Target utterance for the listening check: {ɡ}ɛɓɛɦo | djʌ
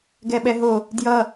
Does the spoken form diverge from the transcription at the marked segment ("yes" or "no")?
no